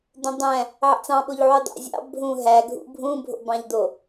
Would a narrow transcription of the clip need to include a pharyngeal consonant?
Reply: yes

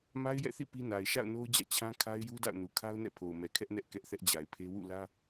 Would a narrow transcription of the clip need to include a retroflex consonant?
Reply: no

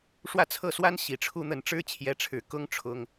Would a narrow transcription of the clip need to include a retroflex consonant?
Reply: yes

